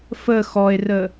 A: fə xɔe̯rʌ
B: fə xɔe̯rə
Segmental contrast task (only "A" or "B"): B